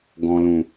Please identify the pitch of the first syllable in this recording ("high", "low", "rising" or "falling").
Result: low